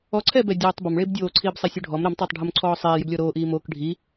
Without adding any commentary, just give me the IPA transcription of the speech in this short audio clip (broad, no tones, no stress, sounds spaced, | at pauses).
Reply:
ɔ ǀʰ ɛː b ɛ dʲ ɛː tˤ b ɔ m ɭ eː b dʲ oː ǀʰ iː b sˤ e sʲ o ɖʱ ɔ m ɾ ɛ m tˤ ɛː tˤ ɖʱ o m ǀʰ ɔː sˤ eː j ʏ b lʲ ɔ ɾ oː ʔ iː m oː k ɖʱ i